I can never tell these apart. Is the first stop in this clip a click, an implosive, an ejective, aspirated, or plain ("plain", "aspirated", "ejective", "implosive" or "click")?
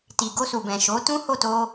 plain